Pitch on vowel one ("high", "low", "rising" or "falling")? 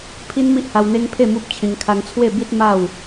high